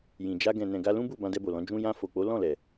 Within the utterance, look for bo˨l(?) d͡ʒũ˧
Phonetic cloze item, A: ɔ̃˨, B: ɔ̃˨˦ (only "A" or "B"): B